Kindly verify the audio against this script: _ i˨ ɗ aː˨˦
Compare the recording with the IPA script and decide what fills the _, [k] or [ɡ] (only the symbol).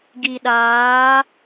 ɡ